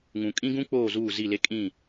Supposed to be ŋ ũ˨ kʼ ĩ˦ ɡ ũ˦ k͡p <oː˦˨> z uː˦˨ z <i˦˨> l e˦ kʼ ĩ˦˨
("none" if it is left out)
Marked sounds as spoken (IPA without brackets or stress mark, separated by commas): oː˦˨, i˦˨